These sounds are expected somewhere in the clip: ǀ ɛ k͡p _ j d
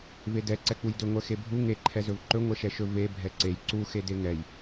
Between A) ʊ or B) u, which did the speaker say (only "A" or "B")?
B